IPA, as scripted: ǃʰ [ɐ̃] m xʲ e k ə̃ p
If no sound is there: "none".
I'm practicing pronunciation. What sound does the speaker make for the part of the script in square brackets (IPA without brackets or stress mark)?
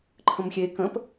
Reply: ə̃